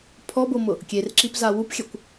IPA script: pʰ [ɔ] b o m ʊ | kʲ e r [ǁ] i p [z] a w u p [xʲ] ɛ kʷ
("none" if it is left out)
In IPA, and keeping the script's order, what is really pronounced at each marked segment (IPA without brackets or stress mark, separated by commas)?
ɔ, ǁ, z, xʲ